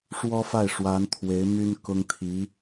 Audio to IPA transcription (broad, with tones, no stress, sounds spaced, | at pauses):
ʂ w ɔ˥ f a˥˩ ɪ̯ ʂ w a˧˥ n t̪ʰ w e˧˥ ɪ̯ m y˥ n k ʊ˥ ŋ t̪ʰ i˧˥